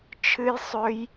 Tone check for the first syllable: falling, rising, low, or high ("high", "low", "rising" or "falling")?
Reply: high